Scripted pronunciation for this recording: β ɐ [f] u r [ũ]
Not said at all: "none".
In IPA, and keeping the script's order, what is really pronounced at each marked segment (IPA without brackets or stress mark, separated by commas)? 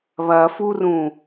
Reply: f, ũ